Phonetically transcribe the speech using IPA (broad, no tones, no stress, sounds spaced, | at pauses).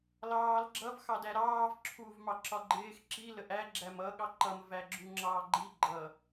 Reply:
l ɑː l ɡ͡ǁ ʌ v x ɑ d æ ɾ ɑː v ǁʰ u v m ɑ ǁ ɒ ɡ͡ǃ ɪː x ǁ i l ə ʔ æ ɡ͡ǁ æ m ʌ ɠ ɑ ǃ ʌ m v æ ɡ͡ǁ u ŋ͡ǁ ɑː ɡ͡ǃ i ɡ͡ǃ ʌ